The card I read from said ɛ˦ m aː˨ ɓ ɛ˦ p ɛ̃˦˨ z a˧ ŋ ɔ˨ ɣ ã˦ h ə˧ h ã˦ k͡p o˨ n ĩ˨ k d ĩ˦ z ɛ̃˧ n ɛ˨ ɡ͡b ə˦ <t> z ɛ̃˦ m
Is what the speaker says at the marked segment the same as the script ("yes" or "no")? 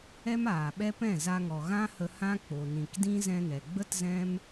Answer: yes